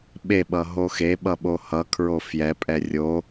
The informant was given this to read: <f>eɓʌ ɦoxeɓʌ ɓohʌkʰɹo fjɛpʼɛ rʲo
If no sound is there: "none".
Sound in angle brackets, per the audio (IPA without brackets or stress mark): ɓ